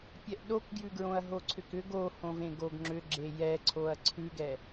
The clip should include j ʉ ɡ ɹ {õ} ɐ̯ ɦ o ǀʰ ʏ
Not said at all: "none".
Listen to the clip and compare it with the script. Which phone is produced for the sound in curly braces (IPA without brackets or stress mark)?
õ